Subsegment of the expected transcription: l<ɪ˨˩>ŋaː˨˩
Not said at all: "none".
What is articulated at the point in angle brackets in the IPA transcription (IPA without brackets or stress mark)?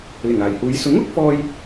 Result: ɪ˨˩